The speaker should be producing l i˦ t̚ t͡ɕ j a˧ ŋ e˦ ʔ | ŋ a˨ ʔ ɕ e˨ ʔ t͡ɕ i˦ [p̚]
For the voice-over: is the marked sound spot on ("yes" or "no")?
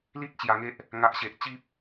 yes